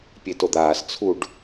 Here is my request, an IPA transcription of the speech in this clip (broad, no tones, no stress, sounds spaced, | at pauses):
pʲ e t o d̪ aː s t͡sʰ u ɖ